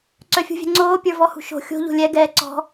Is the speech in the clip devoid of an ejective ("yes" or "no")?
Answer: yes